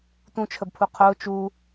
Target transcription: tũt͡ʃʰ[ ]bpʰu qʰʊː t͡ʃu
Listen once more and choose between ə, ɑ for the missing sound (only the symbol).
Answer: ə